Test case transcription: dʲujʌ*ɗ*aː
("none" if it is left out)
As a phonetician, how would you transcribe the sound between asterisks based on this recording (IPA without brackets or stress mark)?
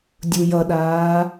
ɗ